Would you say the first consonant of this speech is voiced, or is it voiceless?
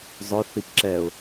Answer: voiced